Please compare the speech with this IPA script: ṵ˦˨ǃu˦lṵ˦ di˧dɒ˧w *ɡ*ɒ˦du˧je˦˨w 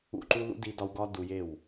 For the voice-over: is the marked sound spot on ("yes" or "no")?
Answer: yes